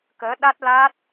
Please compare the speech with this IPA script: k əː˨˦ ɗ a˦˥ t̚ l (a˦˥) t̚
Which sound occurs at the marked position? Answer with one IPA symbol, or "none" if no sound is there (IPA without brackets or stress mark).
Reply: a˦˥